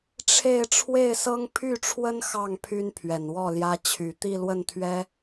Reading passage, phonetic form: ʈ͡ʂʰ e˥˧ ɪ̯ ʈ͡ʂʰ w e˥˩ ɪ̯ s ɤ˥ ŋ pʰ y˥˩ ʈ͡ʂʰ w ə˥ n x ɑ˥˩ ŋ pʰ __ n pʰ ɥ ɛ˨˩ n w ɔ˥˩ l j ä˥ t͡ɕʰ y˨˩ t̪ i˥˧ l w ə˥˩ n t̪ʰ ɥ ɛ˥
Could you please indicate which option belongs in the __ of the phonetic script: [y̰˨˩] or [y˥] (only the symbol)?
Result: y˥